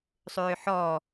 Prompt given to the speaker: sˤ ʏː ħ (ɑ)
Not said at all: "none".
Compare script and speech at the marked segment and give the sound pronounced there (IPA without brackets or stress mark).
ɔ